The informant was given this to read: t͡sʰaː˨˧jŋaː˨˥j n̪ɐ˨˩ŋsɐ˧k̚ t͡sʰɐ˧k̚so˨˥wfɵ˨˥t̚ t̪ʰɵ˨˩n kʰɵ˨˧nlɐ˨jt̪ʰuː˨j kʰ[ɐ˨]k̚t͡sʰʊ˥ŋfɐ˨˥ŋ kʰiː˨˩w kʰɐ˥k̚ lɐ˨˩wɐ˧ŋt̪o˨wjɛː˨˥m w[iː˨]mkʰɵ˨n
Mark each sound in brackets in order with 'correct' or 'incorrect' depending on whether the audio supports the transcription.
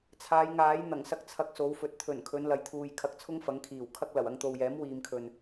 incorrect: ɐ˧, correct

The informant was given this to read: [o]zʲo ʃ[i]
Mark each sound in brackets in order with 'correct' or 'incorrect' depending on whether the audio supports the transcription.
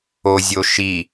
correct, correct

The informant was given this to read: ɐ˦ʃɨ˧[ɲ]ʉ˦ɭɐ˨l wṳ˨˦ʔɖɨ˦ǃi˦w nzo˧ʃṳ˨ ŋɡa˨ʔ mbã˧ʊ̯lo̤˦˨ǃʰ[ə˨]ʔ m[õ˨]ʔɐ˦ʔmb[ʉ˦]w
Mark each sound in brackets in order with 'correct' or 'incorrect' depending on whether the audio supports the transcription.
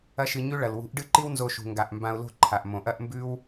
correct, incorrect: a˨, correct, correct

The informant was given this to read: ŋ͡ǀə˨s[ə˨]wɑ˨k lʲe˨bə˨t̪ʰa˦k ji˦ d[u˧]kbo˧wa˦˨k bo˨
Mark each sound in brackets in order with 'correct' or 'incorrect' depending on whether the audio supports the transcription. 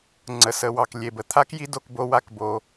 correct, incorrect: o˧

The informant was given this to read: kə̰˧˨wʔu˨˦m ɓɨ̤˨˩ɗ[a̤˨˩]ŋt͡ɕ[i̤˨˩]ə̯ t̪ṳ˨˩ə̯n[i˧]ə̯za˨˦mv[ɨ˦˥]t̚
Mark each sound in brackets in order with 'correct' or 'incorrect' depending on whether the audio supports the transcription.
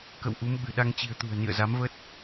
incorrect: a˧, correct, incorrect: ḭ˧˨, incorrect: ə˦˥

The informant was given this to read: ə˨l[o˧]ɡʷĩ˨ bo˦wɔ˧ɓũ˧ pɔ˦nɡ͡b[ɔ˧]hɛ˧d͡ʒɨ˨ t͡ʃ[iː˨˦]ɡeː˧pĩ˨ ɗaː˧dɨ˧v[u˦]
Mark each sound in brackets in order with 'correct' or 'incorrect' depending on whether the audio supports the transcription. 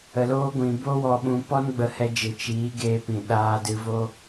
incorrect: oː˧, incorrect: ə˧, correct, incorrect: o˦

